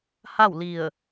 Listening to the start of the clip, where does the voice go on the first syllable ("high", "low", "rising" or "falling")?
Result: falling